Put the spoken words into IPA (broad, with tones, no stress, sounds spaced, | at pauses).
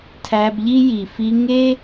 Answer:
tʰ æ˧ b ʎ i˦ j i˨ f i˧ ŋ e˦